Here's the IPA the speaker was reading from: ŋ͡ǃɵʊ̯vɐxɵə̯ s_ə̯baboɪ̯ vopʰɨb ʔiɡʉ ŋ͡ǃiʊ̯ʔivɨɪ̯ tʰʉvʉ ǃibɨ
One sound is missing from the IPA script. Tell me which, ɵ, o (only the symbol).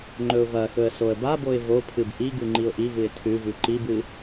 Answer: o